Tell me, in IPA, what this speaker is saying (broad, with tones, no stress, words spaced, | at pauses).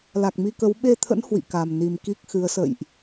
la˨˩k̚mi˧kə˨˦w ɓe˧t̪ʰə̰˧˥n hwḭ˧˨ka˨˩mni˨˩m ki˦˥k̚xɨ˨˦ə̯sə̰˧˨jʔ